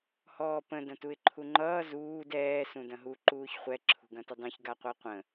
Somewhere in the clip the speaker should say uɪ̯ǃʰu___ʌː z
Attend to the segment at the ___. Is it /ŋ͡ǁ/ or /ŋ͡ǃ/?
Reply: ŋ͡ǃ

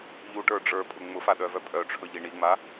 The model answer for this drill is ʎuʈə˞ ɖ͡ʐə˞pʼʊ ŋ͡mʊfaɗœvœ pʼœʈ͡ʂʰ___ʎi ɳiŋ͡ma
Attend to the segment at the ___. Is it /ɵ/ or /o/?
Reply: ɵ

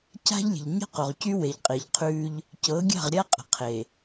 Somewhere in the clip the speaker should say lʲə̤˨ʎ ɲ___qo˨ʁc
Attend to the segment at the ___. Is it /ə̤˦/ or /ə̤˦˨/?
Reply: ə̤˦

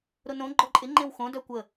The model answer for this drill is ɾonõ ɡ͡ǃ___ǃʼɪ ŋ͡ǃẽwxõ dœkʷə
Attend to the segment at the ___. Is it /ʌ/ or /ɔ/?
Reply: ɔ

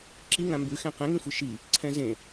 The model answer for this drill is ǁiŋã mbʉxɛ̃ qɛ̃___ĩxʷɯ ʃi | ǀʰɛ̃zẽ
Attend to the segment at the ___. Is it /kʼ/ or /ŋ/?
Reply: ŋ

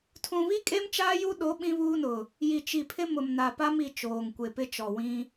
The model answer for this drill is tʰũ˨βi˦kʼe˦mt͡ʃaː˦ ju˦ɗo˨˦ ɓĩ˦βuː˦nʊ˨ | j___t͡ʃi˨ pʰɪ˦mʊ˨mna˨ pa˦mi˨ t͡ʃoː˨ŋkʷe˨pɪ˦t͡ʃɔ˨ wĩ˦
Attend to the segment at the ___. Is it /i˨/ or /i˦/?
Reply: i˨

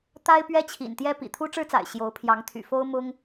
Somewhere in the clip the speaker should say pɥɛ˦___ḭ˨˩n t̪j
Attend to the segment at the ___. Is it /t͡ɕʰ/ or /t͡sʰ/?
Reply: t͡ɕʰ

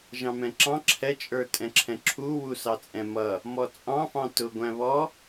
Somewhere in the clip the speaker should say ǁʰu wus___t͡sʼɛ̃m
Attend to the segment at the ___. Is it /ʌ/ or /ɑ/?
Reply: ɑ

